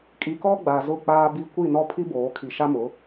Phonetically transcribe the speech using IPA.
kʼ i˨ k ɔ˦ ɡ͡b a˨ z ʊ˦˨ k͡p aː˦ b i˦ kʷ i˦˨ n ɔ˦ pʰ i˦ b oː˨˦ kʰ i˨ ʃ a˦ m ʊ˨˦

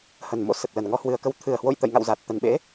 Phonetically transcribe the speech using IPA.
h ə˨˩ n m o̰˧˥ s ə˨˩ t̚ l ə˨˩ n ŋ ɔ˨˦ h w ɨ˨˩ ə̯ k ə˧ w t̪ʰ ɨ˨˩ ə̯ h w o̰˧˨ j t̪ ə̰˧˨ j ŋ a̰˧˨ w z a˨˩ t̚ t̪ ə˨˩ n ɓ ḛ˧˥

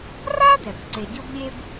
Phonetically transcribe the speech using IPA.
r a˥ d ɛ˩ b ǀ e˨ ɟ ʊ˦ b lʲ e˦ b

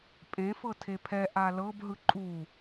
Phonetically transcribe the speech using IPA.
pʼ ẽ f ɤ tʰ e pʰ ɛ ʔ a l ɤ b ɦ ɯ ǃʼ u

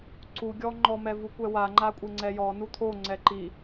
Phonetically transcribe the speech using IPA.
ǀ u ɡʲ ɔ ŋ͡ǃ ɔ m ɛ v u kʷ ɛ w a ŋ͡ǃ a kʷʼ e ŋ͡ǀ ɛ j ɔ n u t̪ʰ o ŋ͡ǀ ɛ ǃ i

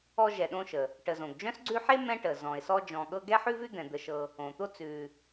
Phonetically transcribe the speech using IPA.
ɔ˦ ʒ ɛ˨ ɗ õ˦ ʃ ə˩ | ʈ ə˨ z õ˩ ɡ d͡ʒ œ̃˥ s ɡ͡ǀ ʉ˦ ħ e˥ m ɛ̃˥ ʈ ə˩ z ɔ̃˩ ɪ̯ s ɔ˦ d͡ʒ ɔ̃˨ ɠ ɤ˦ ɡ ɛ˥ ħ ʉ˥ v ʉ˥ d̪ ɛ̃˩ d̪ ə˨ ʃ ɤ˨ | õ˩ t̪ o˦ t͡s ʉ˨

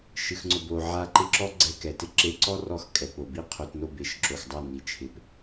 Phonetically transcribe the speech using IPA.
ʃ ɨ˨ x ŋ͡ǀ ʊ˨ b o˨ ʕ a˧ ǃ ɪ˧ ǁ ɔ˦ ɡ͡ǀ ɛ˧ k ɛ˨ t ɪ˦ ǁ e˧ ǀ ɔ˦ r ɔ˧ x kʼ ɛ˨ p o˨ b i˦ qʰ o˧ t n o˦˨ b e˨ ʃ ǁ o˨ x dˤ a˦˨ n i˨ t͡ʃʰ ɪ˨˦ p

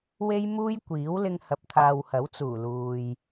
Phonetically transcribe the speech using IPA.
w e˥ j m uː˥ j kʷ iː˨˥ w l ɪ˧ ŋ h ɐ˨ p̚ t̪ʰ aː˨ w h ɐ˨˥ w t͡s uː˨˩ l uː˨ j

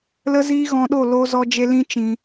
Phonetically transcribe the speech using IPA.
l ə˦ z iː˦ ɣ ɔ̃˧ ɗ o˦˨ l o˧ z ɔ˦ d͡ʒ e˦ l ĩ˦ t͡ʃ ĩ˧

